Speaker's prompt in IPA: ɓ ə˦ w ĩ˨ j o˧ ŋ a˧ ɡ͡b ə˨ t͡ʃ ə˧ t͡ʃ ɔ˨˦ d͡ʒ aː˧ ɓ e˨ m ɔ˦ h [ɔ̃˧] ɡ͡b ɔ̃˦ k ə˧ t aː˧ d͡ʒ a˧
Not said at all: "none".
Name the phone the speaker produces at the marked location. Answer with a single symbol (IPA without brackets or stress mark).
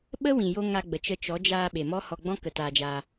ɔ˧